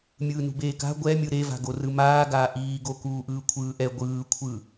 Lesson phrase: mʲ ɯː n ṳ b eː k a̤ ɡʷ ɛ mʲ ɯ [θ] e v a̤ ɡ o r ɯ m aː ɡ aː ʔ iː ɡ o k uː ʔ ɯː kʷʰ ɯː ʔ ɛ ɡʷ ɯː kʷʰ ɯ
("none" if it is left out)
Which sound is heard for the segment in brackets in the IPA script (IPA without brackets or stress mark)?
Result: ɾ